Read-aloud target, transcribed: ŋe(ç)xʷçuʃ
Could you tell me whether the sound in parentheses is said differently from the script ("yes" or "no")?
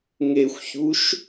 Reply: yes